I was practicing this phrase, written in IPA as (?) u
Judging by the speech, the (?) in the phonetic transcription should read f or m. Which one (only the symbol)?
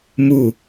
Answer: m